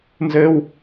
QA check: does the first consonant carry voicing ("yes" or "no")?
yes